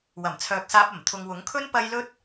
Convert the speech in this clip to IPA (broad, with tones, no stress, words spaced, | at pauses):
wɐ˨˩mt͡sʰœː˨k̚saː˧p̚ɐ˨˩m t̪ʰʊ˨ŋwʊ˨˥ŋkʰɵ˥n pɐ˥j lɵ˥t̚